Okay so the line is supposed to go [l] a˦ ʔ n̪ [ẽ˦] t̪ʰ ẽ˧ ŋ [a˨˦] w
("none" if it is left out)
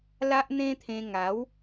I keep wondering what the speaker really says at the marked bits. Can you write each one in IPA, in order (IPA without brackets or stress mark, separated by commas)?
l, ẽ˦, a˨˦